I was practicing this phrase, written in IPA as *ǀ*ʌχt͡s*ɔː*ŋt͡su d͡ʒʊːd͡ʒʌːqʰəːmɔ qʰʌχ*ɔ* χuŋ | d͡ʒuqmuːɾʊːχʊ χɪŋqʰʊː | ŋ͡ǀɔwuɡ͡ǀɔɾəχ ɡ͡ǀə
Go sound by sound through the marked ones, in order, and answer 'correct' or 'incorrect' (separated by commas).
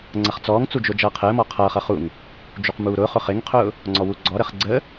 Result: incorrect, correct, incorrect